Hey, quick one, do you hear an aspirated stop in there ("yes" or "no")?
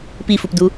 no